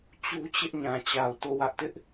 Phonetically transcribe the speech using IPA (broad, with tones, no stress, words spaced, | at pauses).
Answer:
t͡ɕu˦t͡ɕɪ˦ʔ ɲã˨t͡ɕa˨ʊ̯ to˦˨wä˦ʔtɪ˦ʔ